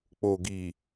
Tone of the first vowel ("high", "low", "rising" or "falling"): low